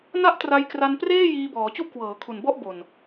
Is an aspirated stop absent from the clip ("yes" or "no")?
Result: no